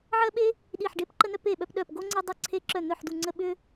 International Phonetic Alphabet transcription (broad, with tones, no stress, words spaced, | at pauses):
ʕɜ˥ɓe˥ | ɗi˥˨ħɖe˥pǃə˥nœ˥p e˥˨ɓœ˥pɗœ˥˨p ɡo˥ŋ͡ǀe˥ dˤə˥ǀʰe˥ ǁœ˥˨n̪œ˥˨ħdu˥˨ŋ͡ǀə˥ ɓʏ˥